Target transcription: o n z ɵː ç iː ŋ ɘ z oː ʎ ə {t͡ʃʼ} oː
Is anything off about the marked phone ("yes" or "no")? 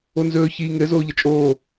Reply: no